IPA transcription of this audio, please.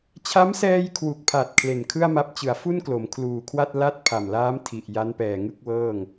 t͡ɕʰ a˦˥ m s ɛː˧ j kʰ w u˨˩ k̚ pʰ a˨˩ t̚ kʰ l e˨˩ n kʰ ɯ˥˩ a̯ m a˦˥ p̚ t͡ɕ ɯ˩˦ a̯ f u˥˩ n k l o˩˦ m kʰ l uː˨˩ kʰ w a˥˩ t̚ l a˥˩ t̚ pʰ a˨˩ m l aː˦˥ m tʰ i˨˩ ʔ j a˦˥ n p ɛː˨˩ ŋ ɯ˥˩ k̚ w ɤː˥˩ ŋ

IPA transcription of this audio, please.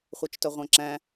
χʷ œ t͡ʃ t œ ʁʷ æ̃ ǁ æ̃

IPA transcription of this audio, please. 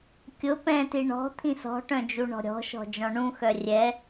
kʲ ʊ p ɛ̃ t i ɳ ɔ̤ t̪ʰ ĩ s ɔ̤ ʈ œ̃ d͡ʒ u ɳ ɔ̤ ɾʲ ɔ̤ ʃ ɔ̤ d͡ʒ ɔ̃ ɳ ũ x œ rʲ ɛ

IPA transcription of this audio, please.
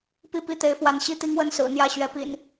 p i˥˨ p i˥˨ t̪ e˨˦ ɪ̯ f w a˨˦ n ɕ i˥˨ t̪ i˦ ŋ w ə˥˨ n s ɹ̩˨˩ n̪ j ä˥˨ ɕ ɥ ɛ˨˦ p ḭ˨˩ n

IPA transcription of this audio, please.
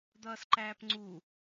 d̪ ʌː s ǃ æː p ŋ͡ǀ u

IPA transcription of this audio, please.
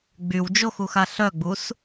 ɡ͡b y w d͡ʒ o x u x a ɬ œ ɡ͡b u s

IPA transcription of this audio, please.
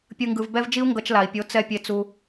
pʲ ɯ˧ ŋ ɡ ɯ˧ v b ɛ˦ v d͡ʒ i˦ u̯ ŋ ɡ ʌ˧ t͡ʃ l a˨ i̯ pʲ o˨˦ t͡s ɛ˧ pʲ e˧ t͡s u˧

